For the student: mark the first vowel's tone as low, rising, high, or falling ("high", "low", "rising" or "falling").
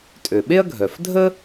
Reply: low